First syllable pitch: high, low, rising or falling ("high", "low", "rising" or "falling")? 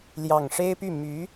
low